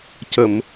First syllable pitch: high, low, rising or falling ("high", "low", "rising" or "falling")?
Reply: low